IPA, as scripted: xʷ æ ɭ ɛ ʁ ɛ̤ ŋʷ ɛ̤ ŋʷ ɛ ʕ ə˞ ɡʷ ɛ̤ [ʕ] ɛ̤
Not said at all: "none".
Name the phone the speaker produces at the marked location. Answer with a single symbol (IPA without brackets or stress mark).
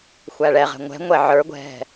ɦ